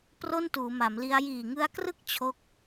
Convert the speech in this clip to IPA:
p r o˥˩ n t uː˩˦ m a˩˦ m l i˦˥ a̯ j iː˨˩ ŋ ɯ˦˥ a̯ k r ɯ˥˩ k̚ t͡ɕʰ o˦˥ k̚

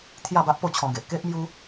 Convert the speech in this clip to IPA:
t̪ʰ j a˥˧ b a˦ ʔ p o˥˧ t͡ɕʰ ɔ̃˧ ɡ e˨ ʔ k e˦ ʔ m j u˦

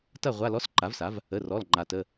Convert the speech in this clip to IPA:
t ɐ˦˨ ʁʷ a˧˥˧ l ɔ˧˥˧ s ǃ a˩˥ v s a˩˥ v | ə˩˧˩ r ɔ˩˧˩ l ŋ͡ǃ a˩ t ə˩˧˩

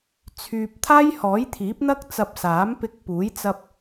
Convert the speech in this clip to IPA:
t͡sʰ yː˨ p̚ t̪ʰ aː˥ j h ɔː˨˥ j t̪ʰ iː˨˥ p̚ n̪ ɐ˥ k̚ t͡s ɐ˧ p̚ s aː˨˥ m p ɪ˧ k̚ p uː˨˥ j t͡s ɐ˧ p̚

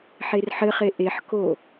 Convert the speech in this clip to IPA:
ħ e r ħ ɘ χ e ʔ e ħ k o

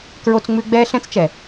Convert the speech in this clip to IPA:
k ɹ o˦ t͡s ŋ͡m ʉ˦ ɡ͡b ɛː˦ ɬ ɛ̃˦ t͡s t͡ʃ ɛ˨

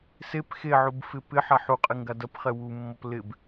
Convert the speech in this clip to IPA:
s e p x e ʕ u b f ɪ p ɪ ħ a ħ u qʼ ɪ ŋ ɡ a d ɐ p χ ɛ w u mː ɔ p l ɪ b

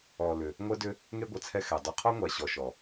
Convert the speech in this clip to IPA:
ɔ˨ l ʏ˨ | ŋʷ ɛ˦ d ʏ˦ | ŋ e˦ ɡʷ ɜ˨ t͡sʰ ɛ˦ x ɛ˨ dˤ u˨ qʰ ɔ˦ ŋʷ a˨ ɕ ɔ˨ ʃ ɔ˨

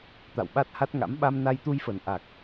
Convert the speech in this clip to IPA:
t̪ a̰˧˨ w ɓ a˦˥ t̚ h a˦˥ t̚ ŋ a̰˧˥ m ɓ a˧ m n a˧ j t̪ u˧ j f ə˨˩ n ʔ a˨˩ k̚

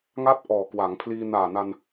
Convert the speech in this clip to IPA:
ŋ a˥˩ t̚ ʔ ɔː˨˩ k w a˩˦ ŋ pʰ l iː˧ n aː˨˩ n a˧ n

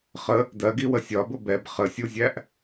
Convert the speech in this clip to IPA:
χ ə | d ɜ ɡ i w ə sʲ ɒ b ʊ b ɛ b χ ə sʲ u zʲ æ ʔ

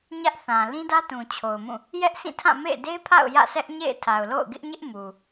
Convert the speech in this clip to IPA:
ɲ ä˦ ʔ θ ã˨ l ĩ˦ d ä˦ t ũ˨ t͡ɕʰ o˨ ʊ̯ m ũ˦˨ | j ɛ˦ ʔ s ĩ˦˨ tʰ ã˦˨ m ḛ˦˨ ɪ̯ d e˦ pʰ a̰˦˨ ʊ̯ j ä̰˦˨ s ɛ˦ ʔ ɲ ḛ˦˨ ɪ̯ tʰ a˨ ʊ̯ l o̰˦˨ ʊ̯ ɡ ɪ˦ ʔ ɲ ɪ˦ ʔ m u˨

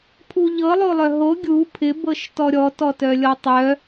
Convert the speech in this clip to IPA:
pʰ u ʎ ɤ lˠ o lˠ œ ɦ o ɡʲ u pʰ ɪ b ɤ ʃ t ɔ ɾʲ ɔ t ɔ t œ lʲ ɔ tˤ œ

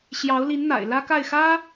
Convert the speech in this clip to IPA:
ɕ j ɑ˧˥ ʊ̯ l i˧˥ n n̪ a̰˨˩ ɪ̯ l ä˥ k a˥˩ ɪ̯ x ä˥

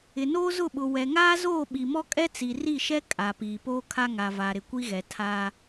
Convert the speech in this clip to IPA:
ɪ˨ n oː˦ z ʊ˦˨ ɓ ʊ˨ w ɛ˨ ŋ aː˦ z oː˦˨ ɓ i˨ m ɔ˦ kʼ ɛ˦ t͡s i˨ r i˦˨ ʃ ɛ˦ kʼ a˨ p iː˨ p oː˦ kʰ a˦ ŋ a˨ v aː˨ ɾ ɪ˨ kʷ i˦ ɣ ɛ˨ tʰ aː˦

